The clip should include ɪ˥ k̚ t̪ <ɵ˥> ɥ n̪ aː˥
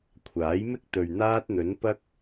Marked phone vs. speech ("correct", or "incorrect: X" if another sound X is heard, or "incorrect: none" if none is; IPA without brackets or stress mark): incorrect: ɵ˨